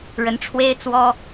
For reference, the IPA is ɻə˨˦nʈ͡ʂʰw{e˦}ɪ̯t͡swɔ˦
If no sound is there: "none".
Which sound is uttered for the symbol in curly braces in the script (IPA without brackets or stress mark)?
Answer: e˦